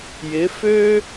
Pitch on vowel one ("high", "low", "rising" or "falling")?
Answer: rising